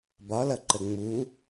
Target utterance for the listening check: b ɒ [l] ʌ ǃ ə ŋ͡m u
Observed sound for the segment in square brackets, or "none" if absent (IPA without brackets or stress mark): l